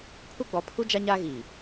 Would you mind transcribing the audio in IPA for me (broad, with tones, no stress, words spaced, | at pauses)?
pʰu˦ɡ͡bɔ˨˦pʰu˦ d͡ʒa˦ɲaː˦ɣiː˨